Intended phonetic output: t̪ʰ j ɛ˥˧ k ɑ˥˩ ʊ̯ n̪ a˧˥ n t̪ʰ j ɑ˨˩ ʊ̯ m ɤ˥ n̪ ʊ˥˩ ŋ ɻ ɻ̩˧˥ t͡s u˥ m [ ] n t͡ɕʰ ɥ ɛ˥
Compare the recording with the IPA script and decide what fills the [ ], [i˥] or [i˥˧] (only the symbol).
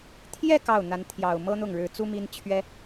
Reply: i˥